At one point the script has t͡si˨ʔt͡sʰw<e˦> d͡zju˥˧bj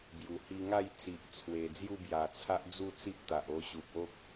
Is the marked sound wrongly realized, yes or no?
yes